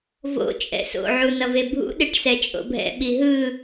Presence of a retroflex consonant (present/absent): present